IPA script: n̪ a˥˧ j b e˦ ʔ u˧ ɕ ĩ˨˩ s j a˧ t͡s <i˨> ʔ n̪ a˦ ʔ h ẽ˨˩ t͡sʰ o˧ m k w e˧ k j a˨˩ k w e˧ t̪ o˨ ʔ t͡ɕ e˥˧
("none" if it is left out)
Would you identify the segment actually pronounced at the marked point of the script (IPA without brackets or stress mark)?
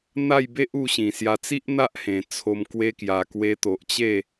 i˦